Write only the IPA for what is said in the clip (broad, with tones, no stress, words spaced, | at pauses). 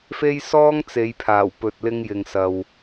fe˥jsɔː˥ŋt͡se˨˧jpʰaː˨˩w pɵ˨t̚lɪ˧ŋjɪ˨ŋsɐ˨w